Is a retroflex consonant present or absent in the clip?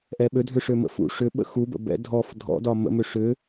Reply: present